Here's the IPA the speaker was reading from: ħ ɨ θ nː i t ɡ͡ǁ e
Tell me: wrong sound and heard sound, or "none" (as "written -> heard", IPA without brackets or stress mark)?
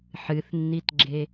none